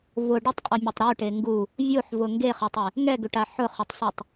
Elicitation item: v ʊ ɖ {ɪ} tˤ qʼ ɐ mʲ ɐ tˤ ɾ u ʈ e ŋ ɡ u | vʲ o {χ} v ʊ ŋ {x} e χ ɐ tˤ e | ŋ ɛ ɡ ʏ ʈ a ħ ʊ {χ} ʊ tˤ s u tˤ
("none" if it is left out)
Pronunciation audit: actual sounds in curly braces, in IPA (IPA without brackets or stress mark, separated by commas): ɪ, ħ, ɡ, χ